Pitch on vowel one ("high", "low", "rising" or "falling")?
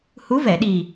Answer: rising